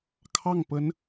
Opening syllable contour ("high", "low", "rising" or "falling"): falling